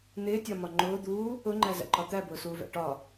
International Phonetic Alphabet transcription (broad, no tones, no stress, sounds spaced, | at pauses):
n̪ ɪː tʲ ɒ m ɒ ŋ͡ǃ ʊː d̪ uː | ʊ ŋ͡ǃ æ z æ̰ ǃ ɒ t̪ æ b ʊː s uː v æ̰ ʈ ɒ